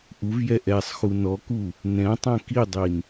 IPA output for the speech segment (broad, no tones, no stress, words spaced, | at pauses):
ʔuvjɛ ʔɛsˤxu nɔku | nɛ̃ tˤɛ̃kidˤin